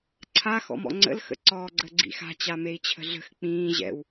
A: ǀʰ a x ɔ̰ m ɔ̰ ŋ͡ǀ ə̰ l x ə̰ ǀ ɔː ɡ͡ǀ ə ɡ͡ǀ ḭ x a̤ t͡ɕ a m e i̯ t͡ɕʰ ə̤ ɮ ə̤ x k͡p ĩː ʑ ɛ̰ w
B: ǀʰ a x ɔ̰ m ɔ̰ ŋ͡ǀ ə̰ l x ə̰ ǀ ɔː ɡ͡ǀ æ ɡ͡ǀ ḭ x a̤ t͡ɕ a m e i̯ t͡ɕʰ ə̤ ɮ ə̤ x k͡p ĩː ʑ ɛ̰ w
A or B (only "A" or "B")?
A